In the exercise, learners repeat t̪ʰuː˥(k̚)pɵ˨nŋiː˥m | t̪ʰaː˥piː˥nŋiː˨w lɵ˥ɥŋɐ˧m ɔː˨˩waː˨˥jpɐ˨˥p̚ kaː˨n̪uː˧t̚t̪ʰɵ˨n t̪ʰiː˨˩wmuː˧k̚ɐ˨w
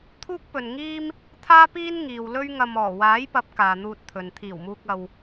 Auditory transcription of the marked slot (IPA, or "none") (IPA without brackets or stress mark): k̚